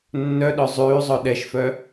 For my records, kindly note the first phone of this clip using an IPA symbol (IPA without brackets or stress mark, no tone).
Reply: nː